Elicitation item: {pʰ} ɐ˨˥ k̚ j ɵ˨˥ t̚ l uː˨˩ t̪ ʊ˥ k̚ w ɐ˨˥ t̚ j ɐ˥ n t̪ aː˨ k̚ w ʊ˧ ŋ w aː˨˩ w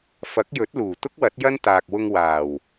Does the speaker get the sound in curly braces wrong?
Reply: yes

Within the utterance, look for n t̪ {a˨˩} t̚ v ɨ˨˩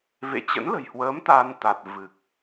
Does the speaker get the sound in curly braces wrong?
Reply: no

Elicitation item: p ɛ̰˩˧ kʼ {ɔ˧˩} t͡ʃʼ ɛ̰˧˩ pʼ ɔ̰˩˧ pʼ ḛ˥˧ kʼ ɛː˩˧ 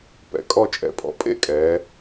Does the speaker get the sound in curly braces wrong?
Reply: no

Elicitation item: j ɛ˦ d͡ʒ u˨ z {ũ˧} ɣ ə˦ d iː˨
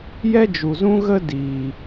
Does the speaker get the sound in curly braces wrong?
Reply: yes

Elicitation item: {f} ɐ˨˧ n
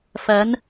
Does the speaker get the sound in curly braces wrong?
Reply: no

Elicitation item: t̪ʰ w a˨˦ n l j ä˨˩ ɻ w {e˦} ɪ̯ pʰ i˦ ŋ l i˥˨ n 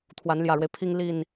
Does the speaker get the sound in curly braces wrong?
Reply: no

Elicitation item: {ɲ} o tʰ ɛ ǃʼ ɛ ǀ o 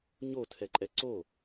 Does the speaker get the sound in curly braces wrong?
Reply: no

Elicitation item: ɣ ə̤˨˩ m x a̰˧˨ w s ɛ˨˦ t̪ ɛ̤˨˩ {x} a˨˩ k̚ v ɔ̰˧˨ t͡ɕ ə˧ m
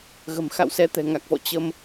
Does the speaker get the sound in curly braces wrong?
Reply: yes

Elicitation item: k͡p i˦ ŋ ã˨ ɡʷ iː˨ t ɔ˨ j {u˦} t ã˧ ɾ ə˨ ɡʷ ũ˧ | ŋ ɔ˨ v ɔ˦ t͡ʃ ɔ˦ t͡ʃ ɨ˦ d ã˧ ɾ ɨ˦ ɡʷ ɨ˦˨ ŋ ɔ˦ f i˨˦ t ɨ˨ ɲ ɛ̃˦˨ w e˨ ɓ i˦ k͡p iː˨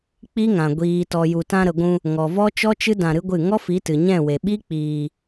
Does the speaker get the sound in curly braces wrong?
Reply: yes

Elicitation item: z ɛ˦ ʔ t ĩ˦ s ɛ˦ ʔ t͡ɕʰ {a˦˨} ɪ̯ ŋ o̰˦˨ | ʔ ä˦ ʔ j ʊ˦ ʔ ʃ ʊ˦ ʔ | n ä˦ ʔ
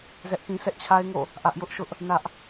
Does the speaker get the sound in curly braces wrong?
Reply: yes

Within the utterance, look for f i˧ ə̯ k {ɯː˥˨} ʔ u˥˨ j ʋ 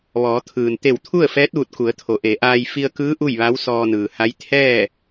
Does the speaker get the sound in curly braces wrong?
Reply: yes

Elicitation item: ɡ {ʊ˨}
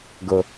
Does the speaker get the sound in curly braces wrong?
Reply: no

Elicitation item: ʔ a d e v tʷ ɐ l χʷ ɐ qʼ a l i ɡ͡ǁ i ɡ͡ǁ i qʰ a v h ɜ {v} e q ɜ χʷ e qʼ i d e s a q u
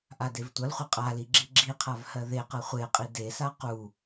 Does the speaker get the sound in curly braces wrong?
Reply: yes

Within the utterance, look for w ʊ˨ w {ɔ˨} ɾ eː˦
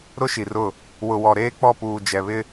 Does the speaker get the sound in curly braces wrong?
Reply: no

